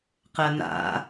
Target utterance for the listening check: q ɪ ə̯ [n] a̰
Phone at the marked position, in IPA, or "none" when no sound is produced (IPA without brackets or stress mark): n